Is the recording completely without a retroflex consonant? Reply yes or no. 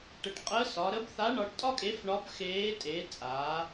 no